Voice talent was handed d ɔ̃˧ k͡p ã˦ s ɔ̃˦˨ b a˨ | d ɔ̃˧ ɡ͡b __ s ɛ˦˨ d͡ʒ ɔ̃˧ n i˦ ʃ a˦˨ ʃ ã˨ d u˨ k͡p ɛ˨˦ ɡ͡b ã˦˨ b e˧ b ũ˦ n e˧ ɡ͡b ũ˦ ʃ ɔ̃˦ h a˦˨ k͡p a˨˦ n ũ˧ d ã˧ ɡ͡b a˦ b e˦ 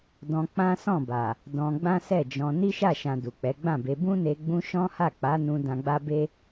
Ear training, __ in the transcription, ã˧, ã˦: ã˦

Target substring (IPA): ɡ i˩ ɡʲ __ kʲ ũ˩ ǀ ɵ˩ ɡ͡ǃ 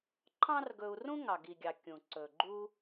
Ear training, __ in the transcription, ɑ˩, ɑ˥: ɑ˩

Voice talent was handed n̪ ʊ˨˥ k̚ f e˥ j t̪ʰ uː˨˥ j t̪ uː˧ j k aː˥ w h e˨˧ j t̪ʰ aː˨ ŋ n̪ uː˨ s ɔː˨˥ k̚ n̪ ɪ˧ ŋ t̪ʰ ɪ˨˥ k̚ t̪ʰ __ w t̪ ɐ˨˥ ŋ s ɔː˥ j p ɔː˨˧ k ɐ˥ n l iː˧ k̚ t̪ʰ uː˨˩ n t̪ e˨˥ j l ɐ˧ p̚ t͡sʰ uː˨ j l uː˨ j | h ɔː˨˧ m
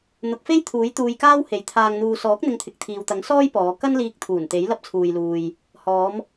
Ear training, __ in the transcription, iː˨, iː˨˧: iː˨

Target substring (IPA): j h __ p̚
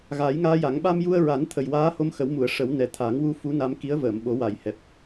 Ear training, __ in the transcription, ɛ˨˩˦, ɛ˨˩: ɛ˨˩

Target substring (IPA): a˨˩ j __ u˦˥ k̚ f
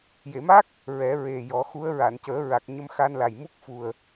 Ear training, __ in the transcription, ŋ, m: m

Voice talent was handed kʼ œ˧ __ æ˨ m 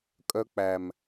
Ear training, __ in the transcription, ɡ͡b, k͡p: k͡p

